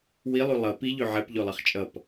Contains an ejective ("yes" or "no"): yes